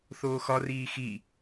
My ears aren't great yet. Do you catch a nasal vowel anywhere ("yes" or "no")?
no